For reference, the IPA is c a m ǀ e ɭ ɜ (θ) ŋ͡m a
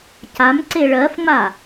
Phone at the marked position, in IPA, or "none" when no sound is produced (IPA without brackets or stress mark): f